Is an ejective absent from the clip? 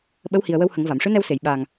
yes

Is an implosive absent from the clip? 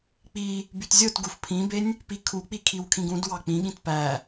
no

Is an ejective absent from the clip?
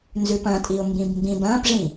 no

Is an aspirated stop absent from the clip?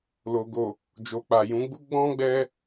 yes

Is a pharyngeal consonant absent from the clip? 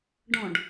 yes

